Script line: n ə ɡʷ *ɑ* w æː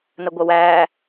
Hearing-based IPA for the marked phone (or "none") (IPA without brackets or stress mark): ɐ